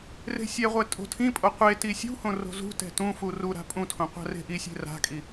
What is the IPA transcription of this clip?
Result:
r e̤ sʲ ɛ ʁʷ ɛ tʼ o̤ tʰ ĩ pʼ o qʷ e t i sʲ ṳ h õ r o̤ z ṳ t ɛ̤ t ũ f u r u ɾ a̤ pʼ ũ tʰ õ qʷ a̤ r e̤ ʔ i sʲ e̤ r a̤ kʼ i

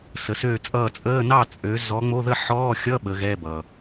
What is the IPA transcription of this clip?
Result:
s ə˨˦ s øː˥˨ t͡sʼ ʌː˥˨ t͡sʼ əː˧˥˧ n ɑ˥˨ t͡sʼ ø˨˦ z ɔ˨˦ ŋ͡m o˧˥˧ ð ə˥˨ ħ ɔː˧˥˧ xʲ ʌ˧˥˧ ɓ əː˨˦ ɣ ɛ˧˥˧ b ʌː˩

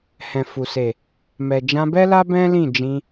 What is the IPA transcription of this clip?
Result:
h ɛ̃˨ f u˨ s e˨ | m ɛ˨ d͡ʒ ã˧ b ɛ˦ l a˦ b ɛ̃˦ l ĩ˦˨ d͡ʒ ĩ˧

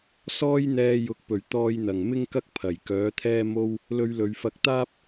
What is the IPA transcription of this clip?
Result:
s ɔː˥ j n̪ ɛː˧ j ʊ˨ k̚ p ɵ˨˩ ɥ t̪ ɔː˧ j n̪ ɐ˨˩ ŋ m ɪ˥ ŋ k ɐ˥ k̚ pʰ ɐ˨˩ j k œː˨˥ t̪ʰ ɛː˥ m o˥ w | l ɵ˧ ɥ l ɵ˨ ɥ f ɐ˧ k̚ t̪ aː˥ p̚

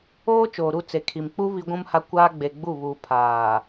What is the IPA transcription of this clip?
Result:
oː˦ t͡ʃ oː˨ ɾ u˦˨ t͡s e˨ kʰ i˨ m k͡p u˦ β i˦ ɡʷ ũ˦ m h a˦ kʷ aː˦ ɡ͡b e˨ ɡ͡b u˦˨ β uː˨ pʰ aː˨

